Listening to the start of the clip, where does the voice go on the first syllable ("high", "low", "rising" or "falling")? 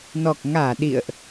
low